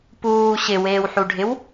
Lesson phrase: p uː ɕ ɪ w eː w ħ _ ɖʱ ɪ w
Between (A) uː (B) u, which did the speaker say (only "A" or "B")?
B